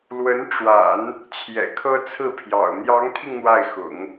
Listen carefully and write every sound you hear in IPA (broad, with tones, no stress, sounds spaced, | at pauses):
l w ə˧˥ n ʈ͡ʂ w a̰˨˩˦ n | t͡ɕʰ j ɛ̰˨˩ kʰ ɤ˥ t͡sʰ ɹ̩˥˩ pʰ j ɑ̰˨˩ ʊ̯ n̪ j ɑ˧˥ ŋ t̪ʰ i˧ ŋ n̪ w a˥˩ ɪ̯ x ʊ̰˨˩˦ ŋ